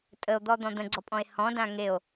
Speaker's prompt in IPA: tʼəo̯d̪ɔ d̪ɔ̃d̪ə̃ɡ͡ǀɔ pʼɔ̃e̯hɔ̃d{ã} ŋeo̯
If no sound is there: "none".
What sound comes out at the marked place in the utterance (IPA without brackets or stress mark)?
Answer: ã